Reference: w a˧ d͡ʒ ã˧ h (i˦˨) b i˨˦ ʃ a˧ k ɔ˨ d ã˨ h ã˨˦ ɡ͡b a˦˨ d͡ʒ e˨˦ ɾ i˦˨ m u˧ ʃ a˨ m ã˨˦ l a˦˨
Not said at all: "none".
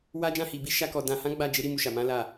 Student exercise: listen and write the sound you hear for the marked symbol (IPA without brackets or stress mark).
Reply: i˨